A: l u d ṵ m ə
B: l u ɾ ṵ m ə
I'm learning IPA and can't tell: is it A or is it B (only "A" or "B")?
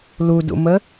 A